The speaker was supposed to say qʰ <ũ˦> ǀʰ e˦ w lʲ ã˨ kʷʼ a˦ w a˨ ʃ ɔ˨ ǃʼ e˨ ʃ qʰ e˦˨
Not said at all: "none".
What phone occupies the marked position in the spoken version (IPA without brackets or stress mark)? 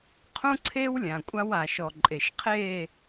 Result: ũ˦